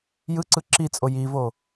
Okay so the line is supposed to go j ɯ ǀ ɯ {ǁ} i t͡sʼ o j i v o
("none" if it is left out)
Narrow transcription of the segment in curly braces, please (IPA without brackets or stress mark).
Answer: ǁ